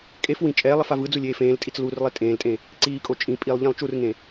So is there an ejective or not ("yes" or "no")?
yes